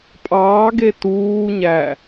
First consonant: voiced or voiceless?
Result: voiceless